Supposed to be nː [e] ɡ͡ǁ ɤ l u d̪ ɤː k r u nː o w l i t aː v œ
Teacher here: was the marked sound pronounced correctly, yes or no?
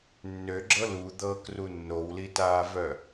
no